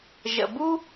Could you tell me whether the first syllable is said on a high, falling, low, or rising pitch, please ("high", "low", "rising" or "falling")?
low